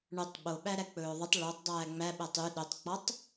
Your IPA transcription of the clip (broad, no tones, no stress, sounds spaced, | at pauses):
ɳ ɵ tˤ ɓ o ɓ æ ɾ æ k͡p ɵː ðˤ ø tˤ ɭ œ tˤ dˤ æː ŋ͡m æ ɓ ɛ tˤ y ɗ ø tˤ k͡p ɔ tˤ